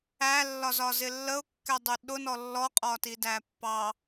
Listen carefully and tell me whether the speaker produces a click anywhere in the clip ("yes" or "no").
no